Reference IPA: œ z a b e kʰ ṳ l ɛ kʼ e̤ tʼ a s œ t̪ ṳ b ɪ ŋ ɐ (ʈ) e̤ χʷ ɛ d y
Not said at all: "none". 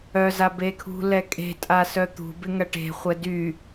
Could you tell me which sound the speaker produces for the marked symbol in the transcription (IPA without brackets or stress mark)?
ʈ